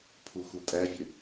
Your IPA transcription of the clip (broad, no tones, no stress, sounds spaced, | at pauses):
pʰ u x u tʼ æ vʲ ø